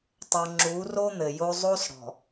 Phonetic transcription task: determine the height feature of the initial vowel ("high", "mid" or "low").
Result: mid